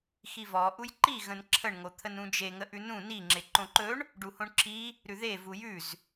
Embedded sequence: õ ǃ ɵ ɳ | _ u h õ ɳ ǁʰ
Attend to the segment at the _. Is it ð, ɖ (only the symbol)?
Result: ɖ